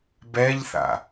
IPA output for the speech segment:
bɛʎθa̰

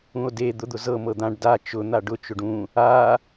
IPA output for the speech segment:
ũo̯de d̪ʊd̪ʊzɤ mɤd̪ãɖ da t͡ʃʊ n̪aɖʊ t͡ʃʊɖũ | a

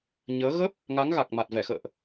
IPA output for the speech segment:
ɲəː˨˦ ɣə˦˥p̚ | ŋa˨˦ŋɣa˨˩k̚ ma˨˩t̚vɛ˧˩xə̰ː˧˨ʔ

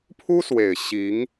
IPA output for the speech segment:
pʰu˥swe˨˩ɪ̯ ɕi˧˥ŋ

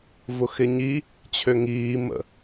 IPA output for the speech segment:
vʊxɪɲi | t͡ɕʰøŋiː mə̰

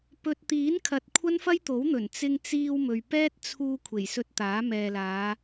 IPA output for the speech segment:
pɵ˨t̚t̪iː˨˥nkʰɐ˨t̚ kʷʰɐ˥nfɐ˥jt̪o˨˥wn̪ɵ˨˩n t͡sɪ˧ŋt͡siː˧w mɵ˨ɥ pɛː˥t̚t͡sʰuː˧ kʷʰe˨˩jsɵ˧t̚t̪aː˨˥ mɛː˨laː˨˧

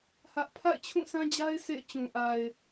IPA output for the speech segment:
hä˦ʔ pʰa̰˦˨ɪ̯t͡ɕʰũ˦˨sʰã˦d͡ʑa˦ɪ̯ sʰḛ˦˨ɪ̯t͡ɕũ˨ʔa˨ɪ̯

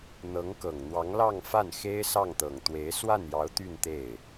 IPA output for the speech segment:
n̪ɤ˧˥ŋkɤ˨˩ŋn̪wɑ˧˥ŋ lɑ˥˧ŋfa˥˩n xe˥ɪ̯ sɑ˥˩ŋt̪ɤ˨˩ŋ t̪we˧˥ɪ̯ swa˥˩njɑ˧˥ʊ̯ t̪y˥˧nt̪e˥˩ɪ̯

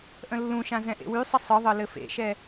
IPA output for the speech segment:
ʔə̃lːũʃã zɛ̃ʔḛwysˤə sˤɯðˤɤ lɘfḛʃɛ

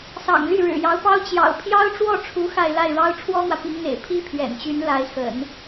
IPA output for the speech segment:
sɑ̰˨˩ŋly˥˩ ɻɻ̩˨˩jɑ˧˥ʊ̯pɑ˥ʊ̯ t͡ɕjɑ̰˨˩ʊ̯ pʰjɑ˥ʊ̯ʈ͡ʂwɔ˥˩ʈ͡ʂʰu˧˥ xa˥˧ɪ̯ la˥˩ɪ̯ɻɑ˥ʊ̯ ʈ͡ʂʰwɔ˥n̪wä˨pi˧˥ŋn̪ḛ˨˩ɪ̯ pʰi˥pʰɥɛ̰˨˩nt͡ɕy˧˥n la˧˥ɪ̯xə̰˨˩˦n

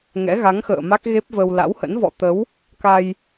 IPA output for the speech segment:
ŋɛ̰˧˥ɣa˨˦ŋxə̰ː˧˨ ma˦˥k̚ɣe˦˥p̚və˧w la̰˧˥whə̰˧˥n vɔ̰˧˨t̪ə˨˦w | ka˧j

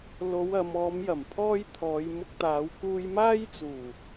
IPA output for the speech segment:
lo˨˧w ɐ˨˧m ɔː˨˧mjɐ˨˩mpʰɔː˧j t̪ʰɔː˨˧j mʊ˧k̚t̪aː˨˧w kuː˧jmaː˥jt͡suː˨˩

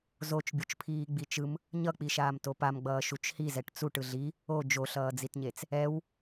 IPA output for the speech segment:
zot͡ʃ bʲot͡ʃpʰiːɡ͡bit͡ʃɯm | ɲʌk͡piʃaːm topamɡ͡bʌː ʃut͡ʃhizɛʈ t͡suʈ ɯɮi | o d͡ʒoɬʌːd͡zitɲet͡s | ɛw

